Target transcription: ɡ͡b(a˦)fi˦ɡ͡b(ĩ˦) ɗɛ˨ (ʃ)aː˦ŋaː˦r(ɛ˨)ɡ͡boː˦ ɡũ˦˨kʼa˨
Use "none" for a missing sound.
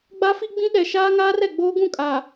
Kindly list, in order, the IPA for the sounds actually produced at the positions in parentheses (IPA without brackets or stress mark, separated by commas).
a˦, ĩ˦, ʃ, ɛ˨